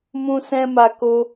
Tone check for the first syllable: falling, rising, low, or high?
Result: high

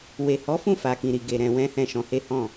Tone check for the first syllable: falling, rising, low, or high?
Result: low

